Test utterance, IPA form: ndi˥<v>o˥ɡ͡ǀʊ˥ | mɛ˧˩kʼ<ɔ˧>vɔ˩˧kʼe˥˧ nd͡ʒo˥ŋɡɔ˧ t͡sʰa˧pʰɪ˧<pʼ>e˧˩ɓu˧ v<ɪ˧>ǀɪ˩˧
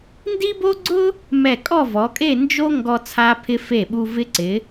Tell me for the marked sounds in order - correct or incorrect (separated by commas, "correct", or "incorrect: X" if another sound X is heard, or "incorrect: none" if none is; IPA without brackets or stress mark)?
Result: incorrect: b, incorrect: ɔ˥˧, incorrect: f, correct